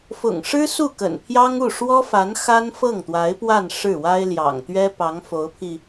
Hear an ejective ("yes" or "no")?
no